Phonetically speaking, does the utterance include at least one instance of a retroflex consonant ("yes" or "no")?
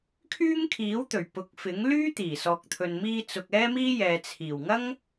no